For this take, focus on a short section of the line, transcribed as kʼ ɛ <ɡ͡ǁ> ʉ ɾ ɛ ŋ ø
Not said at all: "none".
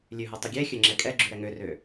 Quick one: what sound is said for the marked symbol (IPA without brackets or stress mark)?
ɡ͡ǁ